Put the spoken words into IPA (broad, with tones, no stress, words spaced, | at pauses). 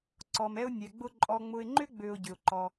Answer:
ǀɔ˨mɛ˦ʊ̯nʲɛ˨ɡ͡bʊ˦ ǃʼɔ˨ŋ͡mʊ˨ɪ̯ŋ͡ǃʏ˦ ɡ͡bø˦ʊ̯ɟʏ˨ʊ̯ǃɔ˦